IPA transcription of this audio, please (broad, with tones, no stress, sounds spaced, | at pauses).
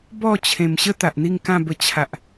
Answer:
b ɔ˥˧ t͡ɕʰ ẽ˨˩ m ɕ ə˦ t̪ a˨ ʔ n̪ i˥˧ ŋ k ã˥˧ b ə˧ t͡ɕʰ a˨ ʔ